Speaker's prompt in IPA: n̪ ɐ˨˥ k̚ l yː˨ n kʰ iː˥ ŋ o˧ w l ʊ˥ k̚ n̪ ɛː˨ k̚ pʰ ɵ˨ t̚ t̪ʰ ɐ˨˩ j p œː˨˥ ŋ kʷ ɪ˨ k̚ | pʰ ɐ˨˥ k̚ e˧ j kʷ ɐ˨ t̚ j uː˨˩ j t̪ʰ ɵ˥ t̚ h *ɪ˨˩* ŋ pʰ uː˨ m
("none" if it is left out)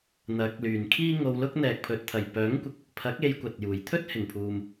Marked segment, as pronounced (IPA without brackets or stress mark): ɪ˨˩